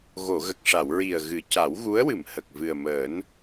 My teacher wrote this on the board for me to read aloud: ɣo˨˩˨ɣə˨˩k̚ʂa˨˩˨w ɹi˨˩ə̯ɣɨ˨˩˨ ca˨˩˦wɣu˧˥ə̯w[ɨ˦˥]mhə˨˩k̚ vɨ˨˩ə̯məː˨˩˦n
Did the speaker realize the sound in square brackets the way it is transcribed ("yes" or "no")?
no